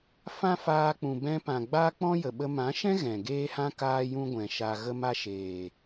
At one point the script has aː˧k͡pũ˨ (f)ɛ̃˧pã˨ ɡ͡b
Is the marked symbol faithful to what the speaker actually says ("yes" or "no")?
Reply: no